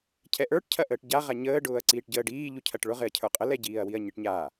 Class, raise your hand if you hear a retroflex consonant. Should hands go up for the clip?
yes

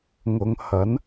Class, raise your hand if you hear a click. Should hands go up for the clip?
no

